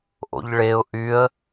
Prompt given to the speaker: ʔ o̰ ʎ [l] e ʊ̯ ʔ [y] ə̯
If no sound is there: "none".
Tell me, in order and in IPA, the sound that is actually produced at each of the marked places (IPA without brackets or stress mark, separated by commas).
ɭ, y